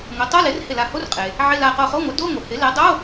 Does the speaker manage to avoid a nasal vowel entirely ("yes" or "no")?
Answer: yes